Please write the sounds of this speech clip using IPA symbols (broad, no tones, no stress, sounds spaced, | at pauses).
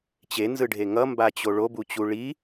t͡ɕ e n z ɯ ɖʱ e ŋ ʌ m b a t͡ɕ o ɭ o b u t͡ɕ u ɭ i